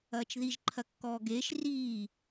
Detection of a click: present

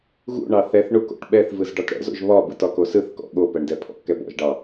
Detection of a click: absent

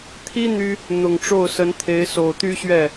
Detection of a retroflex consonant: present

